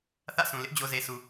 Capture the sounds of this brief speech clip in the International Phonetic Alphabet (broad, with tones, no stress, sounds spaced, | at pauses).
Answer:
θ ä̰˦˨ s ũ˨ l ɪ˦ ʔ d͡ʑ o˨ z e˨ s u˨